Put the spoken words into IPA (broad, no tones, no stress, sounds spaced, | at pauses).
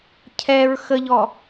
cʰ ɛ ɹ x ə ʎ ɔ